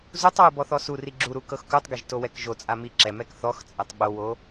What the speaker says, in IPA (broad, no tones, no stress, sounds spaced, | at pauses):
z u tˤ w u b ɔ θ ɔ s u r i ɡ͡ǁ u ɾ u k ɤ x k u tˤ ɡ e ʒ t o w ɛ k ʒ o t͡sʼ a m i ǁ ɛ m ɛ k θ ɔ x t͡sʼ ɛ tˤ ɓ o w o